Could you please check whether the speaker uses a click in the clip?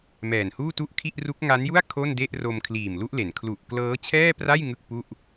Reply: no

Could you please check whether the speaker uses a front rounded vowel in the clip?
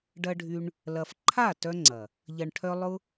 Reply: yes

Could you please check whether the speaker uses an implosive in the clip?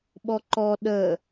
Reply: yes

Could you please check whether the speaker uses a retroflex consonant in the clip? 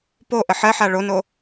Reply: yes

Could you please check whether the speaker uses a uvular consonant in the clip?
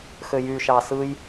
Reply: no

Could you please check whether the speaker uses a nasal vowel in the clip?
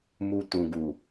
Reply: yes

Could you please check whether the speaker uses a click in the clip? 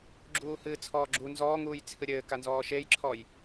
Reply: yes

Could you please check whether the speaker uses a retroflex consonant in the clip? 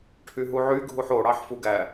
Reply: yes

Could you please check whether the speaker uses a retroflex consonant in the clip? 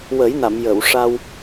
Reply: yes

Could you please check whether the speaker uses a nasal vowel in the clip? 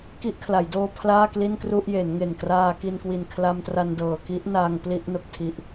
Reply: no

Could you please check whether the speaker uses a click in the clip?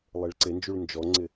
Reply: yes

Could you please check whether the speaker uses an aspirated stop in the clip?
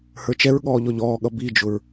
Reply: no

